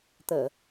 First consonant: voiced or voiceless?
voiceless